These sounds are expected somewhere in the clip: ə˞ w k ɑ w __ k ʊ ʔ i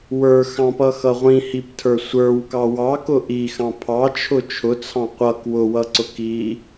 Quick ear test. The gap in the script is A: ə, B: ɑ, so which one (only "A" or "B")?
B